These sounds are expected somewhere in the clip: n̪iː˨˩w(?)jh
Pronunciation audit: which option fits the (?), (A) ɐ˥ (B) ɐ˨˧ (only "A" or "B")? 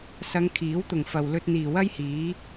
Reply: A